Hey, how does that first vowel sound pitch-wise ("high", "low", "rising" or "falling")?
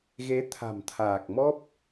rising